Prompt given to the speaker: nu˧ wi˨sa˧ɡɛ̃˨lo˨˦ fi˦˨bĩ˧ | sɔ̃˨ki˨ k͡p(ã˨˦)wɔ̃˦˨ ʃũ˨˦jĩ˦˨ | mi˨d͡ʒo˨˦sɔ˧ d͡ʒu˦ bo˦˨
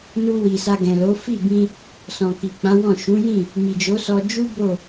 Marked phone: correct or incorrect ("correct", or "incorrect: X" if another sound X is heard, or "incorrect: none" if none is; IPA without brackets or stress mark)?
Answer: correct